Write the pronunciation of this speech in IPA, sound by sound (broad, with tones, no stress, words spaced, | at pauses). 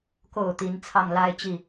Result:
ko˨˩ʊ̯ t̪i˧˥nt͡sʰɑ˥˩ŋ la˥ɪ̯t͡ɕi˥˩